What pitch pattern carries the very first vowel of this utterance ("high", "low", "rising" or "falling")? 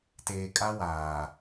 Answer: low